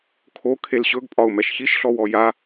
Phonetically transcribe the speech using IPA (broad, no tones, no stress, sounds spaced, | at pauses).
kʰ o kʰ e l ɕ ɵ ɡ pʼ ɒ ʊ̯ m ɛ ʃ ç i ʃ ɬ ɔ w ɔ j a